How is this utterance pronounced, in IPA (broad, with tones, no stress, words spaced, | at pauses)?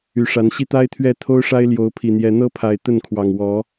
y˨˦ʂa˨˦nɕi˦ t̪a˦ɪ̯t̪ʰɥɛ˥˨t̪ʰo˦ʊ̯ʂa˦ɪ̯ ljo˨˦ʊ̯pʰi˨˩n̪jɛ˨˦ n̪ɤ˦pʰa˨˩ɪ̯ t̪ə˥˨nkʰwɑ˨˩ŋ wɔ˨˦